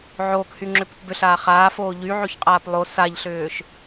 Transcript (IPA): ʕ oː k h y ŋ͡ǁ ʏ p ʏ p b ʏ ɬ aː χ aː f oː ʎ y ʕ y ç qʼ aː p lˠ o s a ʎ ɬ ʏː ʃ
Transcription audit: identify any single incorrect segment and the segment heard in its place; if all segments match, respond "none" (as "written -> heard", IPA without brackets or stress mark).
none